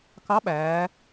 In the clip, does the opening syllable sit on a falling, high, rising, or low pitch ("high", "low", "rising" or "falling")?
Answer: rising